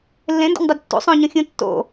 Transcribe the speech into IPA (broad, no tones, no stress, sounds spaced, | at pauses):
lː ẽ n d o̰ ɲ dˤ a d tː ṵ sˤ õ ɲ õ xʲ ũ tː o̰